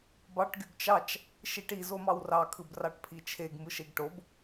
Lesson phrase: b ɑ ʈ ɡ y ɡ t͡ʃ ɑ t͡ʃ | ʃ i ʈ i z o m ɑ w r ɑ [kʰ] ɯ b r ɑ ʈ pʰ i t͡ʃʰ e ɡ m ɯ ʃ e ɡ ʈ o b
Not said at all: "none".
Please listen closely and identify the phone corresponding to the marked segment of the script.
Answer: kʰ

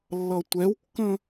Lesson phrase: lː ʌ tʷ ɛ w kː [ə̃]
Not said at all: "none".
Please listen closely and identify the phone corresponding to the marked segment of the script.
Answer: ə̃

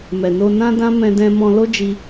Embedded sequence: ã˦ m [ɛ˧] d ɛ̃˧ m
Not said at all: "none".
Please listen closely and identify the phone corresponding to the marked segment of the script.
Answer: ɛ̃˧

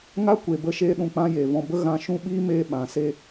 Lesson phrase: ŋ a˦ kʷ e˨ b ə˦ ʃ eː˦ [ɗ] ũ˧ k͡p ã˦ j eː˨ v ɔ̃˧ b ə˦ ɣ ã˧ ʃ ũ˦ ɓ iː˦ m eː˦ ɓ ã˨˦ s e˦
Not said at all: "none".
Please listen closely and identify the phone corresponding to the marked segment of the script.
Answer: ɗ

